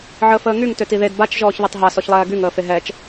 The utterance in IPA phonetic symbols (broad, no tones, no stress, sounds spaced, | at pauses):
ʕ əː f əː ŋ y ŋ t ø t i ð e d b a t͡ʃ ʒ ɔː ç ð e tˤ ɦ a s ɔ ç lˠ ɛː ɡ y ŋ əː f e ɦ ɛ t͡ʃ